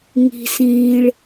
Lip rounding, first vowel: unrounded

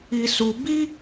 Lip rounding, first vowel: unrounded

